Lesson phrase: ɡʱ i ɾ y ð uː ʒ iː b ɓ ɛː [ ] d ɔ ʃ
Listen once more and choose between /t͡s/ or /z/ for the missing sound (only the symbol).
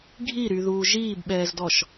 z